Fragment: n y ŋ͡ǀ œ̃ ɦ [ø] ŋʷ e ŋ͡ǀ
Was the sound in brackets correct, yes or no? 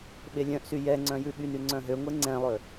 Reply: yes